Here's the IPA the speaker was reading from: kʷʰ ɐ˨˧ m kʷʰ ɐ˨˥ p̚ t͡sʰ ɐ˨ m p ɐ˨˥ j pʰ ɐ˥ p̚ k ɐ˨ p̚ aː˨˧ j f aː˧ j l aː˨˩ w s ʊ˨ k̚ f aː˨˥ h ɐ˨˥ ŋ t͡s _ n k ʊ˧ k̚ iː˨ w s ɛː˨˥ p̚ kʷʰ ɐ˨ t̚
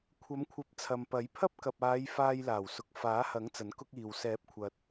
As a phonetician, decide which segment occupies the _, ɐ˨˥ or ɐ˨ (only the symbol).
ɐ˨˥